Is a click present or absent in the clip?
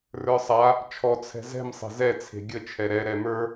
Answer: absent